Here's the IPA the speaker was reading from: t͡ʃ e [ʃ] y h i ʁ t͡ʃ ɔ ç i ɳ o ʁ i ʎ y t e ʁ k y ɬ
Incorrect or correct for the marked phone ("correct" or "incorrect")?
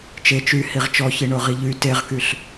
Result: incorrect